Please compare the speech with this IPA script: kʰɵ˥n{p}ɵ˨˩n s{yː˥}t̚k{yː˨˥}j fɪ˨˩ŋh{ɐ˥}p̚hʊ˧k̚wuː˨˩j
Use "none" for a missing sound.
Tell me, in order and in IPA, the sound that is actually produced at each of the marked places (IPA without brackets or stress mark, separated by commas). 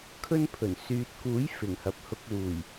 pʰ, yː˨, uː˨˥, ɐ˨˥